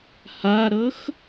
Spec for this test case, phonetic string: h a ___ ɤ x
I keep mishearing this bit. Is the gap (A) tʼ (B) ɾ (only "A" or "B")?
B